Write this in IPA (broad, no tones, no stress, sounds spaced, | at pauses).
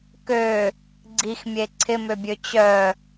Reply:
k ø | ɡ͡ǀ i x mʲ e ǀʰ ɪ m ø bʲ ø t͡ɕ œ